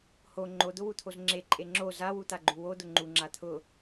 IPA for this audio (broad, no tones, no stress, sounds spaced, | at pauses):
h o ŋ͡ǃ o d̪ ʊ w u t̪ʰ o z ŋ͡ǁ e ǃʼ e ŋ͡ǁ o z a w u t̪ a ɡ͡ǃ u w o d̪ ʊ ŋ͡ǃ u ŋ͡ǁ a t̪ʰ ʊ